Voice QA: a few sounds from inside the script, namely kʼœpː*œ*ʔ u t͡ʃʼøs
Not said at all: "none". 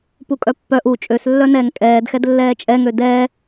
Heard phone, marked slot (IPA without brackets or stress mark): œ